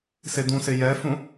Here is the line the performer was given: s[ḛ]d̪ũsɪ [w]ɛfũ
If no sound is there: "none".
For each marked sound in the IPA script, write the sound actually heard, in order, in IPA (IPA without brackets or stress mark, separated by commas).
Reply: e, j